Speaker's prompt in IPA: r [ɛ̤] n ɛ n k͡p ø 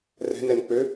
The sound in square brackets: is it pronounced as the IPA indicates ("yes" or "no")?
yes